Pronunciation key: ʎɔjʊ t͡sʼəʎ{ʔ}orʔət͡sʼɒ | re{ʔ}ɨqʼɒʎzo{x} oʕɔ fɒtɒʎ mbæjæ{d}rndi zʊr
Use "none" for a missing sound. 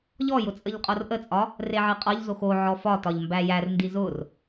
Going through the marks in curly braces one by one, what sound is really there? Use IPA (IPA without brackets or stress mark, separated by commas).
qʼ, ʕ, x, none